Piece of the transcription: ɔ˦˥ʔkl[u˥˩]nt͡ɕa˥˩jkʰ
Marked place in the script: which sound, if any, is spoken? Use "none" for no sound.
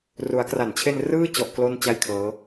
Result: o˥˩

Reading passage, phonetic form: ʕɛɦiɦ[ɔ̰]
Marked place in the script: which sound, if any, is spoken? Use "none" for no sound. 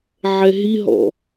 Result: ɔ̰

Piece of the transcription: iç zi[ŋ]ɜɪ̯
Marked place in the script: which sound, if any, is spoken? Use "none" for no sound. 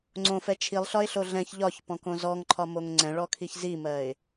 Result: m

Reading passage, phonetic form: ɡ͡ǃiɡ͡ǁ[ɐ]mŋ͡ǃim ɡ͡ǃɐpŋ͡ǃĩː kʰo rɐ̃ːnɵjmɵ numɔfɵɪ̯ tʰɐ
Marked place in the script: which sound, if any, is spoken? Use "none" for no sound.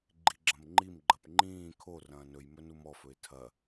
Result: ɐ̃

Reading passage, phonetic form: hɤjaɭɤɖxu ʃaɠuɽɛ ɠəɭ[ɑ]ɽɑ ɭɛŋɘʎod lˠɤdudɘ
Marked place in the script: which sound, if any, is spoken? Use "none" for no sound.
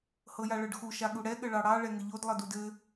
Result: ɑ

